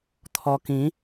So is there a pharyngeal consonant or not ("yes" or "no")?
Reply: no